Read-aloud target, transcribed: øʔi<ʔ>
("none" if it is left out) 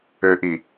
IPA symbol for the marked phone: none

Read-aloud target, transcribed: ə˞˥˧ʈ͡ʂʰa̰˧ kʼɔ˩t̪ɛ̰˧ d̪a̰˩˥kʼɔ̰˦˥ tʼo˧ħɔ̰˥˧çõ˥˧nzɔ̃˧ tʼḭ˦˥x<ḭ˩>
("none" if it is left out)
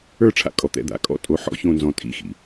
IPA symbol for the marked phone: ḭ˩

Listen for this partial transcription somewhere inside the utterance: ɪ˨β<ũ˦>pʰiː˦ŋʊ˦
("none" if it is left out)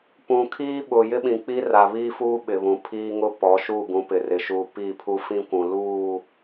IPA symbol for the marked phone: ũ˨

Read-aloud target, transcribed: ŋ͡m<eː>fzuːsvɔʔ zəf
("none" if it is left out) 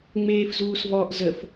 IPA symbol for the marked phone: eː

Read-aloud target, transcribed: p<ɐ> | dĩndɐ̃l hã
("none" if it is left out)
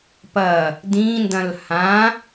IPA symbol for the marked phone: ɐ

